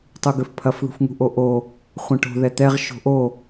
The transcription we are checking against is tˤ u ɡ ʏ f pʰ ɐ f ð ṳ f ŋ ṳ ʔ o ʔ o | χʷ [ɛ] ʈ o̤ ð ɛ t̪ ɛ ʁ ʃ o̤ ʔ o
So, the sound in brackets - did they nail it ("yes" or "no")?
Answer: no